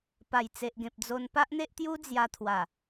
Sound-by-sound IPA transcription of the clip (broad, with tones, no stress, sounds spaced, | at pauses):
p a˨˩ j t͡s e˨ ʔ ɡ ẽ˨ p̚ d͡z o˧ n p a˦ ʔ n̪ e˦ ʔ t̪ j u˦ d͡z j a˧ t̪ʰ w a˨˩